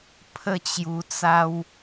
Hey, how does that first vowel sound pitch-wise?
falling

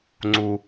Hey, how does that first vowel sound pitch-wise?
low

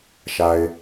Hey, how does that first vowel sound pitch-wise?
low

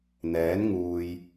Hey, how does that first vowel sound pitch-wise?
rising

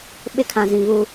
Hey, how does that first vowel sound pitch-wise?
high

